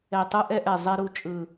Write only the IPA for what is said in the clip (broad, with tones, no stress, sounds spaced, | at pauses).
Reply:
ɛ˨˩ tˤ ɯ˧ ʔ ɛ˧ ʔ ɛ˨˩ zˤ e˧ ɾ u˧ t͡ʃʼ ɯ˨˩